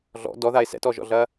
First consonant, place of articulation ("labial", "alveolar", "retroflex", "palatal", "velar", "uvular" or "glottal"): alveolar